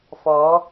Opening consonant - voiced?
no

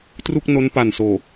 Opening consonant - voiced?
no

